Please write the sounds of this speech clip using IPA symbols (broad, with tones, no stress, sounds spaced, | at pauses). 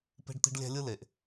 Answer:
p e̤˦ ɖ t̪ i̤˦ ɖ lʲ æ̤˦ lʲ ɯ˦ l e˨ ʔ